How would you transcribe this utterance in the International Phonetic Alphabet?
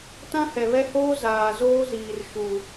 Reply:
t ã˦ h ɛ˨ β ɛ˦ h oː˦ z aː˨ z oː˦ z iː˨ r ʃ u˨

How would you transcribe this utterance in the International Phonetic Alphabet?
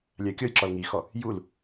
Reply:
lʲ a kʲ ɔ j ǁ ɔ l ŋ i x ɔ | j u l

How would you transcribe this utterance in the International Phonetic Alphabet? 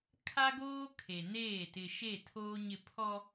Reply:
kʰ a˦ ɡ oː˦ kʰ e˨ n eː˦˨ t ɪ˨ ʃ e˦˨ tʰ oː˦ ɲ ɪ˦˨ pʰ ɔ˦

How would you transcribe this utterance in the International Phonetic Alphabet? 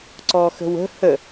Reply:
ǀ ɔ x ə̤ w ə̤ h ə

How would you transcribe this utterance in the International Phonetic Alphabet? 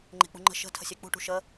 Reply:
ŋ͡ǃ e̤ k͡p ṳ ŋ͡ǃ ə̤ ʃ ə̤ tʰ ə̤ sʲ e k͡p ṳ ʈ ṳ ʃ ə

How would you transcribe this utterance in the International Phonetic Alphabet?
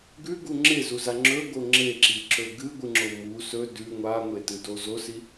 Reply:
ɡ ʉ ɡ u ŋ͡ǁ e z u z a ŋ͡ǁ ɵ ɡ o ŋ͡ǁ e ǁ i ǁ ɵ ɡ ɨ ɡʷ ɨ ŋ͡ǁ o m u s ɵ d ʉ ŋʷ a ŋʷ e t ɨ d o z o s i

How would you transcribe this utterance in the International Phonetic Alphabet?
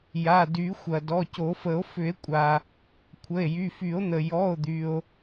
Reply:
j a˩˧˩ d y˨˩˦ xʷ ɐ˩ d ɔ˩˧˩ c o˨˩˦ f ə˨˩˦ o̯ f ʏ˨˩˦ e̯ kʷʼ a˩ | kʷʰ ə˩˧˩ e̯ j y˩˧˩ f y˨˩˦ o̯ n̪ ə˩ j ɔ˩˧˩ o̯ d̪ y˩ o̯

